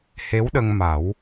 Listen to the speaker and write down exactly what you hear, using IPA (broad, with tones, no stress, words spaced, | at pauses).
he˧˥wɗə˧ŋma˨˩˦w